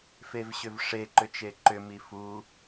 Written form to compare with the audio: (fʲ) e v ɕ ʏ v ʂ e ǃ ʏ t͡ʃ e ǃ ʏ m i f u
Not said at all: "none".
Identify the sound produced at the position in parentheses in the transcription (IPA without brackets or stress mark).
f